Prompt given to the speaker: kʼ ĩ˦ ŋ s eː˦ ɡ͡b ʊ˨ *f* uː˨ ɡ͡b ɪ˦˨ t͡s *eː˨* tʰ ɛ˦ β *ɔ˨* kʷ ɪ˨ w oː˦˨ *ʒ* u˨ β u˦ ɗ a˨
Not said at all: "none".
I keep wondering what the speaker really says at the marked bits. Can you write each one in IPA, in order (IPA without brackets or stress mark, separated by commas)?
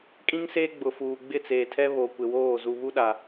f, eː˨, o˨, z